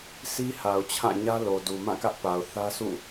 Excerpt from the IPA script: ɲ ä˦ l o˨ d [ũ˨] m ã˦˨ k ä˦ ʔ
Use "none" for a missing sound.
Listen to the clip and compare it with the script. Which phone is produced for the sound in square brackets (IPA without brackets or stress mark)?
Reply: u˨